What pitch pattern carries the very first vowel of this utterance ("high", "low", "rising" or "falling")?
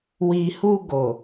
low